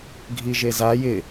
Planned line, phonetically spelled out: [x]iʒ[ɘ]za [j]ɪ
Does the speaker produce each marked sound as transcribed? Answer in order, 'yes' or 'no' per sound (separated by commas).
no, no, yes